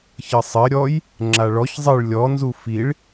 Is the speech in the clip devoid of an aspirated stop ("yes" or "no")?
yes